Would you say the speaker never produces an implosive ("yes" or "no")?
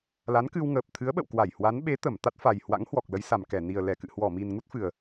no